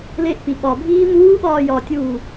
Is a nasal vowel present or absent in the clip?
absent